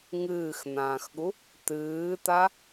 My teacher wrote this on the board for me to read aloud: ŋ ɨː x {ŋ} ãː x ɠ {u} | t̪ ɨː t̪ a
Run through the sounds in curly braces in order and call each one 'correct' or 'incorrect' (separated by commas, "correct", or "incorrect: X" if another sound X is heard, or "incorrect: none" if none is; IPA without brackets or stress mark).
incorrect: n̪, correct